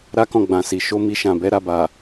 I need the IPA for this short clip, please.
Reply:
ɾa˦kɔ̃˦˨ɡ͡bã˨si˨ ʃo˧ mi˧ʃã˨bɛ˨˦ ɾa˧ba˨

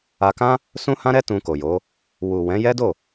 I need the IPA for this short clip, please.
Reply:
a˧kã˦ | sũ˦hã˦ɾɛ˦ tũ˧ko˨jo˨˦ | wu˨wɛ̃˨˦ jɛ˦do˦˨

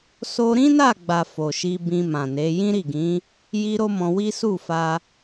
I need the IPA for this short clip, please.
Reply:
so˧ɾĩ˦na˦˨ɡ͡ba˨ fo˨ʃi˧ bĩ˧mã˨ne˨˦ jĩ˦ɾi˦˨ɡĩ˨˦ | ji˦ɾo˦mɔ̃˧wi˦ su˦˨fa˧

